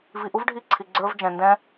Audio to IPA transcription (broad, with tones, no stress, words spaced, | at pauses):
vi˧ʔu˦vɖʱi˦˨ ǀʰi˧ɡ͡ǀə˞˦v d͡ʒɛ̃˧ndɛ̃˦